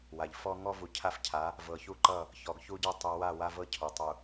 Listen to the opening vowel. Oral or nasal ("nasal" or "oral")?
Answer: oral